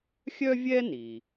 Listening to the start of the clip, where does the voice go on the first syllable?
high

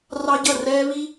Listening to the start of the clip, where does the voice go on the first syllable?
high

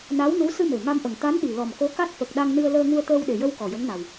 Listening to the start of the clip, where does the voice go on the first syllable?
rising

